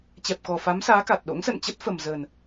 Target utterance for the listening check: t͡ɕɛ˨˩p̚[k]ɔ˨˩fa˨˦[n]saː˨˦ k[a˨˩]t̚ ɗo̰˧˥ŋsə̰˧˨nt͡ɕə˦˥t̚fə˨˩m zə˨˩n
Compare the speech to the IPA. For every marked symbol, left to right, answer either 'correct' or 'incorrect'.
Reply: correct, incorrect: m, correct

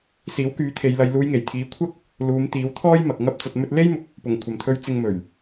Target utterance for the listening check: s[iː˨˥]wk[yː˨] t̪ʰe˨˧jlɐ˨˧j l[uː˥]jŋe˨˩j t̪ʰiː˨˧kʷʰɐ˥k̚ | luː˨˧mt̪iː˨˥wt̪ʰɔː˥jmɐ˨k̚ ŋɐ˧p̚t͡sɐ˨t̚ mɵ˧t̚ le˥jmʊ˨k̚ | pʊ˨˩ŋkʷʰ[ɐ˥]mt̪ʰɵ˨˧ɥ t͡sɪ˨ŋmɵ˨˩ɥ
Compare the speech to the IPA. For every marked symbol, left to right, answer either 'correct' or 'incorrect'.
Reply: correct, incorrect: yː˨˥, incorrect: uː˨˧, incorrect: ɐ˨˩

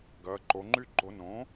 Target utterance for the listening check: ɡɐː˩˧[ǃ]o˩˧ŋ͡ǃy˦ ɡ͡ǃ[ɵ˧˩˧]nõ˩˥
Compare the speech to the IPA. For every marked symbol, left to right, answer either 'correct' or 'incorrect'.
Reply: correct, incorrect: o˧˩˧

